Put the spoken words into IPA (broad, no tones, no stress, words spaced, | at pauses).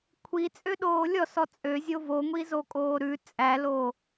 kʷʰit͡sʼøɗoː lʲɔsɔ t͡sʼøzʲo voŋʷizokʼoː ɾʉ t͡sʼæloː